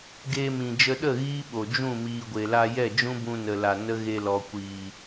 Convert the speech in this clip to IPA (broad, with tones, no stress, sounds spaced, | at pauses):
ɡ eː˧ m ĩ˨ d͡ʒ ə˧ ɗ ə˦˨ ɣ iː˦ ɓ o˨ d͡ʒ ũ˦˨ m iː˨ ɡʷ e˨ l a˧ j ɛ˦˨ d͡ʒ ũ˦ b ũ˧ n ə˨ l a˨ n ə˦ ɣ e˧ l ɔ˨ kʷ iː˨